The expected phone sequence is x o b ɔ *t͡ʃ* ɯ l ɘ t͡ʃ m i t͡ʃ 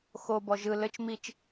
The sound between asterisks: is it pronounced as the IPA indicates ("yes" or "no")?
no